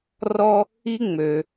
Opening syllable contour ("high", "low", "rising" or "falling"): high